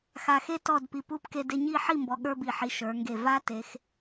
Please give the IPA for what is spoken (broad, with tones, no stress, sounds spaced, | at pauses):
x a˧ x e˥ t ɔ˥˧ d p i˧ p u˥ p k e˧ d e˧ ɲ i˥˧ ħ i˥˧ m b ɔ˧ ɠ ə˞˥ b i˧˩ ħ i˧ ʃ ə˞˩˧ ŋ ɡ e˧˩ v a˥ t e˩˧ x